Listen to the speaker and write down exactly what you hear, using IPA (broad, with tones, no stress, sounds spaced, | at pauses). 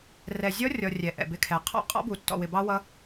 r ɛ˨ zʲ ɔ˦ rʲ ɔ˨ rʲ ɛ˨ ʔ ɛ̰˨ b ɪ˦˨ kʰ ɛ˨ qʰ ɔ̰˦ qʼ ɔ̰˦ b u˨ tː ɔ̰˨ w ɪ˨ b ɑ˦ w ʌ˦